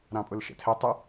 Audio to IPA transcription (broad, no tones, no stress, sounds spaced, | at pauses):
ɾ ɑ̃ pʼ ʊ l ʃ ɛ̰ tʰ ɛ tˤ ə